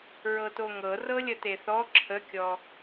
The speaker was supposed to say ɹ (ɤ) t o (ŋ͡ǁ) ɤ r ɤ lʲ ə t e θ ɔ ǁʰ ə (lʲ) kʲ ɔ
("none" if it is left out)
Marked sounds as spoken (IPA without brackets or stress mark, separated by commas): ɤ, ŋ, none